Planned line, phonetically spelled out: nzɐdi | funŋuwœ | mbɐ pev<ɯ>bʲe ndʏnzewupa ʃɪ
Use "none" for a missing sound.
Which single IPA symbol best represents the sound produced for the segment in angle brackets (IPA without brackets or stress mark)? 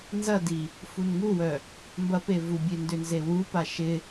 u